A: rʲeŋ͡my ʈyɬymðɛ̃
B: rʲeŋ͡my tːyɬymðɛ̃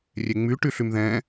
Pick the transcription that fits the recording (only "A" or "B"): A